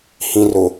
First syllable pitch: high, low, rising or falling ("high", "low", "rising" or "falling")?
low